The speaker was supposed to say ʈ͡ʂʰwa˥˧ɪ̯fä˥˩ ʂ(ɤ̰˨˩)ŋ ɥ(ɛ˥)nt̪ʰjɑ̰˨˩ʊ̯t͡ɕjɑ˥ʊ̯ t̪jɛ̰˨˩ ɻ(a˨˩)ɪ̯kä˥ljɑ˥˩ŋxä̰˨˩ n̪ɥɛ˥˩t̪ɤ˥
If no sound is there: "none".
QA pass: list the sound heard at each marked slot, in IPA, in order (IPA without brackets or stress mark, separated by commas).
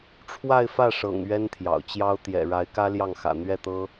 ɤ̰˨˩, ɛ˥, a˧˥